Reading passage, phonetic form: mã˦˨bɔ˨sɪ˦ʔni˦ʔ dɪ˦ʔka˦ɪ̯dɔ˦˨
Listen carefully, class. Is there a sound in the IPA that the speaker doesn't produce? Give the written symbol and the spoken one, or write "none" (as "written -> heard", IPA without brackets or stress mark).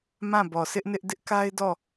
i˦ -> ɪ˦